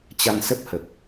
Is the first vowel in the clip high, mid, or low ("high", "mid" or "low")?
low